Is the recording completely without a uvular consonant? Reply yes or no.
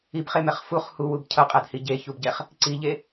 no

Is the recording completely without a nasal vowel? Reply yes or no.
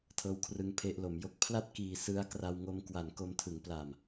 yes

